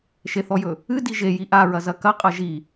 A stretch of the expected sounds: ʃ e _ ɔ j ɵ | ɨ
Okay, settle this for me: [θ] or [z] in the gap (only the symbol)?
θ